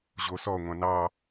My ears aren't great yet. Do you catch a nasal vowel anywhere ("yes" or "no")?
yes